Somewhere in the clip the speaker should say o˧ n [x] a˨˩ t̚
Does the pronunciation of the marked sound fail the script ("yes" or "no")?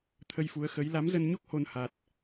yes